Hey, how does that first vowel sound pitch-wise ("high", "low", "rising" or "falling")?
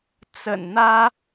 low